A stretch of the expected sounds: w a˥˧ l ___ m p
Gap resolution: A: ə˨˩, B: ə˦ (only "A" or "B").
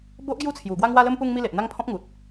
B